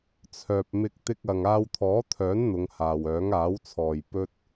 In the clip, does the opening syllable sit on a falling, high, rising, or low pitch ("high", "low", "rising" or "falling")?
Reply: low